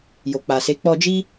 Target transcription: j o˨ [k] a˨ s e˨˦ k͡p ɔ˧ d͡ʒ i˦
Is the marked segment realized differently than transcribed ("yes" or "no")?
yes